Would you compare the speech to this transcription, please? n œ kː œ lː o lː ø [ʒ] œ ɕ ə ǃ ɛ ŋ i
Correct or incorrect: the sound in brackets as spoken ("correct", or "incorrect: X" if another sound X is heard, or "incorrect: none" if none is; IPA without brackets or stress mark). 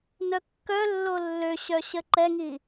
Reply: incorrect: ɕ